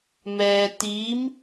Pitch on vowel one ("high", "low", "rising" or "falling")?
low